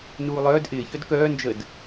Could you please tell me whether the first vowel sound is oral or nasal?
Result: oral